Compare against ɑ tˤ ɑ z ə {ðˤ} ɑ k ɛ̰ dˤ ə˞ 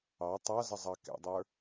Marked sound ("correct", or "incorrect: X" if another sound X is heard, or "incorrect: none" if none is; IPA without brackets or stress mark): incorrect: zˤ